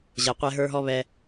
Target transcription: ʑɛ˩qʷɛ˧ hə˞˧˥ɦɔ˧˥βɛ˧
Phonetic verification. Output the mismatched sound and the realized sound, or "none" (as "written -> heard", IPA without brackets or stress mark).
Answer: h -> ɦ